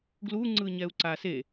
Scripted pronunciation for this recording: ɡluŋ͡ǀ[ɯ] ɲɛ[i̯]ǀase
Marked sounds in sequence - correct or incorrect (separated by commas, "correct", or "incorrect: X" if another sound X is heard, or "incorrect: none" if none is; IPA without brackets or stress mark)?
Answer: correct, incorrect: u̯